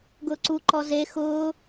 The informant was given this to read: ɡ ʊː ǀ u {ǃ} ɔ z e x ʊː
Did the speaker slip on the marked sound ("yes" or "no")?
no